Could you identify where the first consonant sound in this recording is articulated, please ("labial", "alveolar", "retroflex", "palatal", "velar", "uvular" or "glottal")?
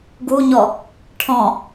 velar